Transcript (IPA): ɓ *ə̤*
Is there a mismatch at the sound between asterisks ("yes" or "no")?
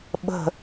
no